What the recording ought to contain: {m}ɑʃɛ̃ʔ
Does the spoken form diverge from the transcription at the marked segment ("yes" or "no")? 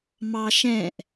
no